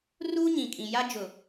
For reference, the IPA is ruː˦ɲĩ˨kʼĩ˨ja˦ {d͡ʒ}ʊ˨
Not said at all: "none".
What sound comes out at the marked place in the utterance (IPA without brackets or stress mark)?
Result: d͡ʒ